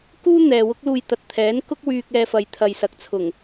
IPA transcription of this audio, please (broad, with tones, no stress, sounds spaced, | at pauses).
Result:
k uː˥ n̪ ɛː˨ w ʊ˥ k̚ l uː˧ j t̪ ɐ˨ t̚ t̪ʰ ɛː˨˥ n k ʊ˥ k̚ w yː˧ k̚ ɛː˧ f ɐ˨˧ j t̪ʰ ɐ˨ j s ɐ˨ k̚ t͡sʰ ʊ˨˩ ŋ